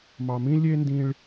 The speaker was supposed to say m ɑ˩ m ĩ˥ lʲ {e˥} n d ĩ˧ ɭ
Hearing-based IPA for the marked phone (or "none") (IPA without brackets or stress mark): e˥